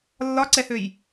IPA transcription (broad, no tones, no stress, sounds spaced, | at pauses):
lː ɒ ǀ ɛ h ø j